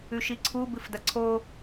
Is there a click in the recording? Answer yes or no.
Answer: yes